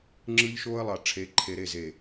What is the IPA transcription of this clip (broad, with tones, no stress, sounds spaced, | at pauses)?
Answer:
ŋ͡ǁ ɯ˦ ʎ ʃ oː˦ ə̯ lˠ ɑ˨ ʈ͡ʂʰ e˨˦ ǃʰ e˨ ɾ e˦˨ z e˨